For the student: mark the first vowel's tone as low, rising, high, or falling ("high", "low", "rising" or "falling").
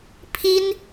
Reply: high